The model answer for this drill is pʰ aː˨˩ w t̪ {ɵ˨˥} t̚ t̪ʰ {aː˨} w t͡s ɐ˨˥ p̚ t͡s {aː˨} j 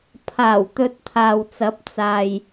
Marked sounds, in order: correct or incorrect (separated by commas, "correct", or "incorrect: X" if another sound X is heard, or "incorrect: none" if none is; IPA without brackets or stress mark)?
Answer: correct, correct, correct